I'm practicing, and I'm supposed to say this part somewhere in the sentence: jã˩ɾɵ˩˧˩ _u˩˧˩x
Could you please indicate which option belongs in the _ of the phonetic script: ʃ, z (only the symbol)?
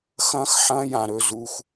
z